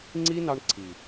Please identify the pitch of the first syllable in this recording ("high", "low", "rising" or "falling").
high